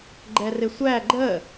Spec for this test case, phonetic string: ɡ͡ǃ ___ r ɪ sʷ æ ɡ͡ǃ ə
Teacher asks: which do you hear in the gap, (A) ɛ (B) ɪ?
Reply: A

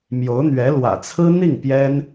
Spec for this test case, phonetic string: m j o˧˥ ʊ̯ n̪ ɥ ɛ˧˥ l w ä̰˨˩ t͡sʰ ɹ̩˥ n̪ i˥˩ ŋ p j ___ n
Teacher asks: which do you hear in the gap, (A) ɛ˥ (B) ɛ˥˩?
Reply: A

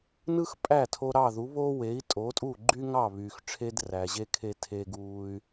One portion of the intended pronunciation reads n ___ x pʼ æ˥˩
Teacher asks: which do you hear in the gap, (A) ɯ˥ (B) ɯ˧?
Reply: A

